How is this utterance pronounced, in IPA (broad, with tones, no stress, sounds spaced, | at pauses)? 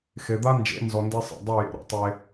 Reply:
x e˨ d̪ a˦ n d͡ʒ ḛ˨˦ n z ɔ˧ n d e˦ sˤ ɛ̰˨ dˤ i˦˨ j ḛ˧ ɾ ɔ̰˧ tˤ e˧